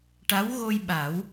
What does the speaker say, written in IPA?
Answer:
ʈ a˧˥ w ɣ o˧ j ɓ a˨˩˦ w

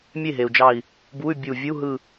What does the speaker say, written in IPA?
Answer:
mʲ e˥˩ ɦ e˩ u̯ d͡ʒ ɑ˧˩ i̯ | b u˧˥˧ y̯ bʲ u˧˩ vʲ u˧˥˧ ɦ ɯ˧˩

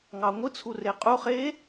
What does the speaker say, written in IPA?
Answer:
ŋ ɑ ŋʷ ɯ t͡sʰ u r e qʼ u χ e

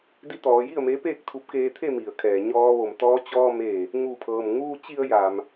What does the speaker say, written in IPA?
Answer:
d i˧˥ t̪ ɔː˩˧ j i˥˨ ə̯ m e˧˥ p eː˥˨ k̚ t̪ʰ u˧ p̚ k eː˧ t̪ʰ e˥˨ m i˩ ə̯ kʰ ɛː˩ ɲ ɔː˧ ʋ o˧˩ m t̪ ɔː˧ t͡ɕ ɔː˧ m eː˧˩ | ŋ u˧˩ pʰ ɤː˩ m ŋ uː˧ t͡ɕ i˧ ə̯ j aː˩ m

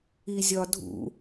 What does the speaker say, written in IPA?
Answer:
i zʲ ɒ dʱ ṵ

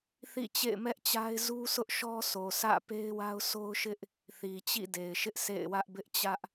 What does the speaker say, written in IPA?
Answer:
θ ḭ˦˨ t͡ɕ ḛ˦˨ ɪ̯ m ɛ˦ ʔ t͡ɕ a˦ ɪ̯ z u˦ s ʊ˦ ʔ ʃ ɔ˦ sʰ o˨ sʰ ä̰˦˨ p e˦ ɪ̯ w a˦ ʊ̯ sʰ o˦ ʊ̯ ʃ ɪ˦ ʔ | θ i˨ t͡ɕ ḭ˦˨ d e˨ ɪ̯ ʃ ɪ˦ ʔ s ḛ˦˨ ɪ̯ w ä˦ ʔ b ɪ˦ ʔ t͡ɕ ä˦ ʔ

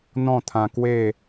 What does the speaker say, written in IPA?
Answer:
n̪ ɔ̃˥˧ t̪ʰ ã˧ k w e˥˧

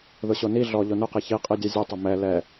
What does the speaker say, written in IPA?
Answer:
ð ʊ ɕ o n i ɮ ɔ ʎ o n ʊ q i ç i qʼ i dʲ ɛ zʲ ʊ tˤ ʊ m ɛ l ɛ

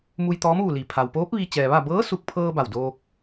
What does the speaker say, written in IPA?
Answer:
m u˧ j t̪ ɔː˧˥ m ʋ u˧˩ l i˩ pʰ a˩ w p oː˧˥ p̚ ʋ i˧ t͡ɕ ɛː˩ ʋ a˥˨ b ɤː˧˥ s u˧˩ k̚ pʰ ɤː˧ b a˧˩ w d oː˧ k̚

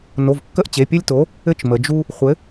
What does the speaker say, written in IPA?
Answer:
n o˩˧˩ v kː ə˦ ʔ t͡ɕ e˩˧˩ pʲ ɘ˦ lʲ t o˨˥ | ɘ˦ t͡ʃ m ə˩˧ d͡ʒ u˦ | χʷ ɘ˨˥

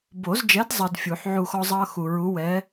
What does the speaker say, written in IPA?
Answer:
b o˨˩˦ z d͡ʒ ɛ˨˥ d zˤ ʌ˨ d fʲ u˨˩˦ ħ ʕ u˦˨ x ɔ˥ zˤ ʌː˥ x u˨ ɹ u˨˥ w ɛː˨˥

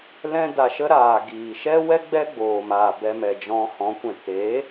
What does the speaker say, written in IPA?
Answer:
l ɛ̃˦ d a˧ ʃ ə˦ ɾ aː˨ ɡ iː˨ ʃ ɛ˦ w ɛ˦ ɡ͡b ɛ˦ ɡ͡b oː˨ m aː˨ b ɛ˧ m ɛ˨ d͡ʒ ɔ̃˧ h ɔ̃˨˦ kʷ ɛ̃˨ t eː˨˦

